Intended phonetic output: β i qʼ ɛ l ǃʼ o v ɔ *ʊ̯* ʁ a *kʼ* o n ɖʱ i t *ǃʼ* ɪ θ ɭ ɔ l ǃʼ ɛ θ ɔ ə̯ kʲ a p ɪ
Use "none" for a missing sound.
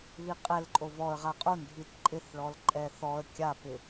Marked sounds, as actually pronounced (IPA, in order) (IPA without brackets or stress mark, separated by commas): ə̯, qʼ, ǃʼ